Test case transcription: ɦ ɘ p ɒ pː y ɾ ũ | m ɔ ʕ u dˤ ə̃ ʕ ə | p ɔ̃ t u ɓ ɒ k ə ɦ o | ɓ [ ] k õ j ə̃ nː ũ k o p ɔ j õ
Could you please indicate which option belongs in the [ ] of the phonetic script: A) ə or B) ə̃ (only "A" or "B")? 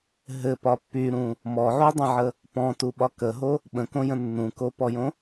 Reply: B